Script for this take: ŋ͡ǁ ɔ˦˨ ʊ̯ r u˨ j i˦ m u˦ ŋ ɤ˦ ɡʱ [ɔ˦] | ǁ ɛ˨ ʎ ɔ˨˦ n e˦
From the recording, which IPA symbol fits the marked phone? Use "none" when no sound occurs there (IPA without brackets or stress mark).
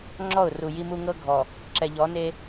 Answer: ɔ˨